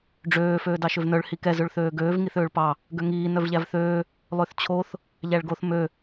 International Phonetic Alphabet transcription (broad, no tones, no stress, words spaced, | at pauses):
ɖ͡ʐøː føːdɑʃøvnœɭ hikɛ zøɭθøːɡøːv ŋiθøːɭpɑ | ɡøŋiː nœvʎævθøː | lˠøθt͡ɕʰoθ | ʎæɭɡoθ mø